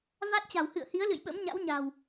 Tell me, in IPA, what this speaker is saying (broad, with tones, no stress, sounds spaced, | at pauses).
v a˦˥ t̚ t͡ɕ a̤˨˩ w h ɨ̰˧˨ ə̯ h i˨˦ ə̯ l ɨ̰˧˨ j ɓ ə̰˧˥ m ɲ a̰˧˥ w ɲ a̤˨˩ w